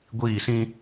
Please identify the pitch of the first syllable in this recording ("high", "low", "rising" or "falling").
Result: falling